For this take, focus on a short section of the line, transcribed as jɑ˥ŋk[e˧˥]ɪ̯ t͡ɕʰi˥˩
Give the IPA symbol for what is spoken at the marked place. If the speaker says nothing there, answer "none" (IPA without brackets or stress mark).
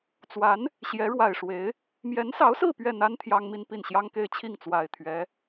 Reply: e˥˧